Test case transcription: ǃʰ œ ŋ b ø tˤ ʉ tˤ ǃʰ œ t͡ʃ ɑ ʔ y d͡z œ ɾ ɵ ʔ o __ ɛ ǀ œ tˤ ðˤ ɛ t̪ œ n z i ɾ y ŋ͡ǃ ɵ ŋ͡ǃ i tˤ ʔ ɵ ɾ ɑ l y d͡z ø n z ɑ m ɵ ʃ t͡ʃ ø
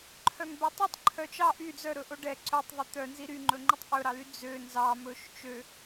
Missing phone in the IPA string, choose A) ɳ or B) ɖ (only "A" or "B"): B